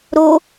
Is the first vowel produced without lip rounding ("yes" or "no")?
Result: no